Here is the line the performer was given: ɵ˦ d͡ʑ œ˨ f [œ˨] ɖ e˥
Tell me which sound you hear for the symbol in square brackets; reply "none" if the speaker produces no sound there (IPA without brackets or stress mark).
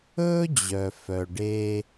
œ˨